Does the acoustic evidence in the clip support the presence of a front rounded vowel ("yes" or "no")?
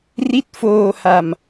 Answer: no